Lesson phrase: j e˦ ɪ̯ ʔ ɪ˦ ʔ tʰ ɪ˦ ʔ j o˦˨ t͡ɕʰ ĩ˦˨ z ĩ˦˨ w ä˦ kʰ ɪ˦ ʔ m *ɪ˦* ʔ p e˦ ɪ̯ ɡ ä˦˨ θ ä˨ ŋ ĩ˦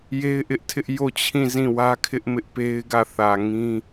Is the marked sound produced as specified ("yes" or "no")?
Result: yes